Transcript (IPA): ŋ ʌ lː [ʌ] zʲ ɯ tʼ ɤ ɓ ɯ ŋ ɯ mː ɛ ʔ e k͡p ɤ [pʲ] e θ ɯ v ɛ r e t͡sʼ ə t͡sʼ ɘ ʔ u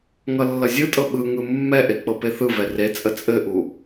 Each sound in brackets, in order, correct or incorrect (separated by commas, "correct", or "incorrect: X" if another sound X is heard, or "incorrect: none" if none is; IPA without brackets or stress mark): correct, incorrect: p